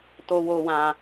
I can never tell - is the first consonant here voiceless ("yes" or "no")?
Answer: yes